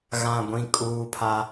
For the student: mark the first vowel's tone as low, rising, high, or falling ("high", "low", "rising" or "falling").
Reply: low